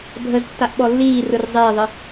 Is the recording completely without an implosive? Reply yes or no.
no